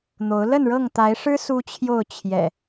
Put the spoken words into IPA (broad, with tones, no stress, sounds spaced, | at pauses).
n̪ o˨˦ ʊ̯ l ə˥˨ n ɻ ɤ˥˨ ŋ t̪ a˨˦ ɪ̯ ʂ ɻ̩˦ s u˦ t͡ɕʰ j o˥˨ ʊ̯ t͡ɕʰ j ɛ̰˨˩